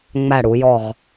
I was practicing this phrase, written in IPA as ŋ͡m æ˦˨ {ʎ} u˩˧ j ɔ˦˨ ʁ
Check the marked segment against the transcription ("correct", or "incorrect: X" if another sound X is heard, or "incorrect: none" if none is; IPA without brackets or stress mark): incorrect: ɽ